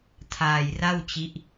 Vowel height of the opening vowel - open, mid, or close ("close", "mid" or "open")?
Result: open